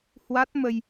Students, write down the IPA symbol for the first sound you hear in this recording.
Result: h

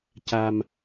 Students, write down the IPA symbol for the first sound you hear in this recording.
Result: c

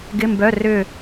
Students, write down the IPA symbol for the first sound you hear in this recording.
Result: ɡ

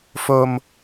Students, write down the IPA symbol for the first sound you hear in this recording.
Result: f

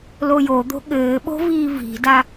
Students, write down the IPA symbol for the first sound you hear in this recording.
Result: l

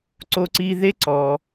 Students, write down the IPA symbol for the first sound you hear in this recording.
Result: ǀ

